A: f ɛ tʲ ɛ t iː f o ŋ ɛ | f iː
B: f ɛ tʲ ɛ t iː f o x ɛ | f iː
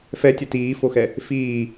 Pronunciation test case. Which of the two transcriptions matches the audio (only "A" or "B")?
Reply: B